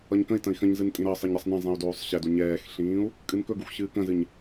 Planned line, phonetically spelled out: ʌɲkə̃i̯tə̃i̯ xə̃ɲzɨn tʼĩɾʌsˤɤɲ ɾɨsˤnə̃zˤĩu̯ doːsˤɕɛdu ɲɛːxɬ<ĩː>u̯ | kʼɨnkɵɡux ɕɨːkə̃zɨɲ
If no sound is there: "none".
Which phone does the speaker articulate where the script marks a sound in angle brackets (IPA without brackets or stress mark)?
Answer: ĩː